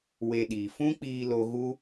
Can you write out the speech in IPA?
we˧ɗiː˨ fũ˦k͡piː˧lo˧ ɣu˦

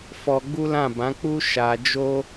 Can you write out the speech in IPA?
fɔ˧ɡ͡bu˦lã˦˨ bã˨˦k͡pu˦ ʃa˧d͡ʒo˦

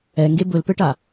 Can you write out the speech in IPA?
ɛŋɡe bɵlpɘʈa

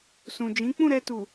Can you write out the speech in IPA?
sũ˨d͡ʒĩ˨˦ k͡pũ˦˨ɾɛ˧tu˨

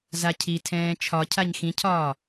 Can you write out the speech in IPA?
zacʰi tʰɛ̃ːt͡ʃʰɒcʰaɲ xĩcʰɒː

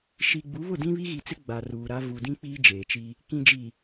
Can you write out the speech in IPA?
ʃi˨ɡ͡bu˨˦βʊ˦˨dĩ˦ βi˦ɣi˨t͡sɪ˦ ɡ͡ba˨ ruː˨ɾa˦ vu˨dĩ˦ k͡piː˦d͡ʒeː˨t͡ʃi˦ | kĩ˨d͡ʒi˨

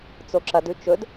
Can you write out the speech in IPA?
t͡soǁɐdʉ t͡ʃɵd

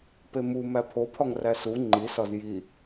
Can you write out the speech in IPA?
pemu mæpʰopʰɒŋ ræsu ŋ͡ǃisɒz ji

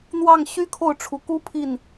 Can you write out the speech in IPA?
n̪wɑ˥˩ŋ ɕy˥kʰo˥˩ʊ̯ʈ͡ʂʰu˨˩ku˥ pʰi˥˩n

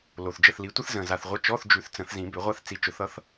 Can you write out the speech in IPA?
lo˨˩θd͡ʒə˦˨θli˨˥ tʷə˥θzə̃˨˩za˨˩θʁʷə˧˥˧ t͡ʃɔ˧˥˧θd͡ʒʉ˨˩˦θ t͡sə̃˨˩˦θzĩ˨˩˦bʏ˨˩˦ʁʷa˥θ t͡si˨˥t͡ʃʊ˨˩˦θʌ˨˥θ

